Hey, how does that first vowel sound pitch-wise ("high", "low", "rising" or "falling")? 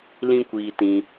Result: high